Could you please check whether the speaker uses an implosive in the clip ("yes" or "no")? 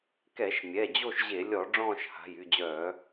no